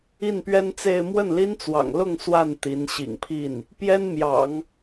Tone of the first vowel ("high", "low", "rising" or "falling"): falling